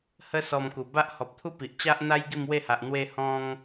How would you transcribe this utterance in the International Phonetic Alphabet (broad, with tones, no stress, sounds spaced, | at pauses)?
h ə˦ s ɔ˧ m k u˨˩ b a˦ ʔ h ɔ˨ p̚ t̪ʰ u˦ p i˨ ʔ t͡ɕ a˦ ʔ n̪ a˦ j ɡ i˥˧ m w e˥˧ h a˨ ʔ n̪ w e˧ h ɔ̃˦ ŋ